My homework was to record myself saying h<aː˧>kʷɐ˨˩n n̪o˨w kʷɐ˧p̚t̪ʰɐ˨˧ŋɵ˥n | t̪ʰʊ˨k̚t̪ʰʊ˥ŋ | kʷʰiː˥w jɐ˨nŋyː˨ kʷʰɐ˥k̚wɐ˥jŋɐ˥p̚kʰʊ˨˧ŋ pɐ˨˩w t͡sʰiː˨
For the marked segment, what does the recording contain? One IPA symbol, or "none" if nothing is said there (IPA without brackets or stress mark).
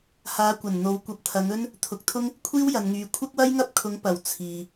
aː˨˧